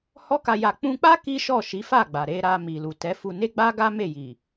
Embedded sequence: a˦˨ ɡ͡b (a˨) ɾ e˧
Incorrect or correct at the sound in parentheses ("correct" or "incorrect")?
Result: correct